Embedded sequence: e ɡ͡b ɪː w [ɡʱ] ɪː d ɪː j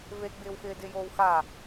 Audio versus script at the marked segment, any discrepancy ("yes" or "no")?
yes